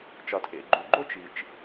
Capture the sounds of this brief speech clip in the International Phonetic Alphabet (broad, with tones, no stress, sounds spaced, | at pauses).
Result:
t͡ʃ ɒ˩ tʰ ḛ˩ ɡ͡ǃ u˩ ɡ͡ǃ o˥ t͡ʃ i˩ t͡ʃ